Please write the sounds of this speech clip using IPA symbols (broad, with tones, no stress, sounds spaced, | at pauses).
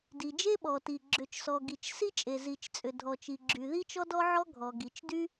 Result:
d i˩ d͡ʒ e˥ ɓ ɔ˩ t i˩ ɡ͡ǁ ʏ˩ t͡ʃ s ɔ˩ ɡ i˩ t͡ʃ s i˥ t͡ʃʼ e˩ z i˩ t͡ʃ t͡sʼ ʏ˩ dʱ ɔ˩ t͡ʃ i˩ ɡ͡ǁ y˩ ð i˥ t͡ʃ ɔ˥ d ɔ˥ ʕ ɔ˥ ɡʱ ɔ˩ ɡ i˩ t͡ʃ d y˥